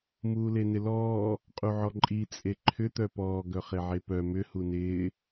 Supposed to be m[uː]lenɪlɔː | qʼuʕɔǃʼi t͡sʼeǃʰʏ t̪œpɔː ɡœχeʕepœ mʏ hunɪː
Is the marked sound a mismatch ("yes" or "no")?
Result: no